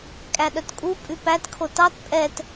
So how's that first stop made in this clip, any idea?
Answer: ejective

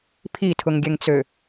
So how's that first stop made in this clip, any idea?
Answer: aspirated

